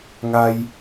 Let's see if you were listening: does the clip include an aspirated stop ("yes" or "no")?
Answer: no